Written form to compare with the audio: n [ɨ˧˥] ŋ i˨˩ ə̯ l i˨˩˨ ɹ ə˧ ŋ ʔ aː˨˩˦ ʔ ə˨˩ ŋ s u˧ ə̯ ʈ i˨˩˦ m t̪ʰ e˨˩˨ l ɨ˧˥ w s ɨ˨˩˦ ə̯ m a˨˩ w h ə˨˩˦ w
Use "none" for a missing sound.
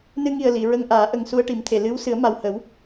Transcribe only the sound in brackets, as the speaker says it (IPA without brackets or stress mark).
ɨ˧